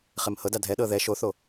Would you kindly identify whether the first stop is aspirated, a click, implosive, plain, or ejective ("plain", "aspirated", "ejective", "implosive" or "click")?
plain